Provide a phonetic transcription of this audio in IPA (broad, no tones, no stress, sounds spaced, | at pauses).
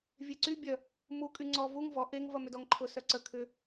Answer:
vʲ e ǀ y bʲ œ | m u kʼ y ŋ͡ǀ ɔ v u ŋ v ɔ ʔ e ŋ v ɐ m ʏ d ɔ ŋ ǃʰ ʊ s œ ǀ ə kʰ ʏ